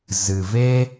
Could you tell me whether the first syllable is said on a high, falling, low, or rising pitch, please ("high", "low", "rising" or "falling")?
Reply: low